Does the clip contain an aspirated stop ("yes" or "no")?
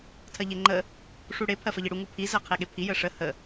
yes